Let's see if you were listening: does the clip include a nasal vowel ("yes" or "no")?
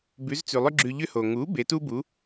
no